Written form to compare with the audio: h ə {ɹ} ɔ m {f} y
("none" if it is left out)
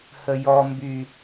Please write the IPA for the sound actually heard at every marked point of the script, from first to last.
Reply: j, b

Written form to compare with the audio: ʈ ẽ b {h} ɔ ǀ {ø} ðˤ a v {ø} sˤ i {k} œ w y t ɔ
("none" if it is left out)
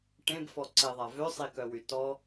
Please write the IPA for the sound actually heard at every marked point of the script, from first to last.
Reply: f, e, ø, k

